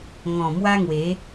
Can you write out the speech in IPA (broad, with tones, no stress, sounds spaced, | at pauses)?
ŋ ɔ̃˨˩ m w a˦ ŋ w e˨˦